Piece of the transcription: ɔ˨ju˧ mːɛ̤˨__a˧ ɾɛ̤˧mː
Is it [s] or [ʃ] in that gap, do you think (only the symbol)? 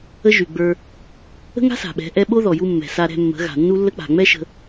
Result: s